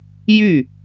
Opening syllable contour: falling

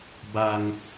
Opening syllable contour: low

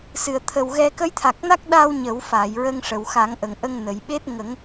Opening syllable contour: low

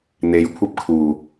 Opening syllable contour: rising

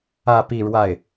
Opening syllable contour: falling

